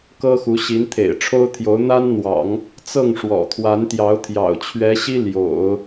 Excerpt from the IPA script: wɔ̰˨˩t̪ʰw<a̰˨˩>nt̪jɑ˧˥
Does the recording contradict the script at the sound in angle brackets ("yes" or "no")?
yes